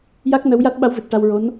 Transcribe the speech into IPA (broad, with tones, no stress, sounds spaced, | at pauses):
j a˦˥ k̚ n ə˧˥ w j a˦˥ t̚ ɓ a˧˥ w v ɨ˨˩ t̚ ʈ a˧ w ɹ o˧˥ n